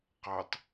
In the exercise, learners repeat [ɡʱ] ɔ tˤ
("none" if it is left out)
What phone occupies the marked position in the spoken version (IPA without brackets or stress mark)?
q